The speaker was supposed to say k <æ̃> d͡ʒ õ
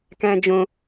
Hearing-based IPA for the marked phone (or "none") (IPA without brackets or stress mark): æ̃